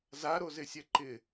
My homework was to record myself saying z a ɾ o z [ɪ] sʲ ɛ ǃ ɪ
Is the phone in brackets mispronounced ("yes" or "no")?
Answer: no